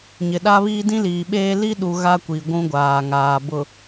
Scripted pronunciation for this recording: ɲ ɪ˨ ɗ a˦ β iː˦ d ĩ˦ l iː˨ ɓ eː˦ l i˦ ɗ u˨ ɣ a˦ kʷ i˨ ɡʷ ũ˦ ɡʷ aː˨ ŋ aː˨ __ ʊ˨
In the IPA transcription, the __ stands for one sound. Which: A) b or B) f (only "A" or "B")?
A